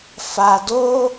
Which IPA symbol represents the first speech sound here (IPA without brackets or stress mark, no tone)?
f